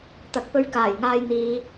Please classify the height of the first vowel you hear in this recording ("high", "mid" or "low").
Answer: low